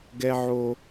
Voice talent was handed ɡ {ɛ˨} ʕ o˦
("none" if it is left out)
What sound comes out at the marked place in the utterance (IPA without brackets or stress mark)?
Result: ɛ˦